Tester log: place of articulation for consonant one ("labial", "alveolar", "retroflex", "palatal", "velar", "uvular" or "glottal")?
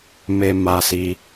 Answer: labial